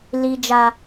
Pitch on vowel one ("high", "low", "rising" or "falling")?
high